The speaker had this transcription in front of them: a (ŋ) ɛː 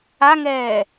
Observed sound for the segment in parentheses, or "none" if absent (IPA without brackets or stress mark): ŋ